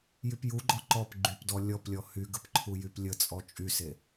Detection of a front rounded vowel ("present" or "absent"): present